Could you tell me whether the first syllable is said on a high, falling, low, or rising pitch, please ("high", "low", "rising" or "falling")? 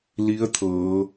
rising